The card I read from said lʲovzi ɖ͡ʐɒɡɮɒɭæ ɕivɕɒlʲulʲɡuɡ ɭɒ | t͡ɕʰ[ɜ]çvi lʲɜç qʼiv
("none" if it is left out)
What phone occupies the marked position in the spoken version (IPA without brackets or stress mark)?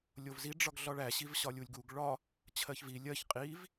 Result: ɜ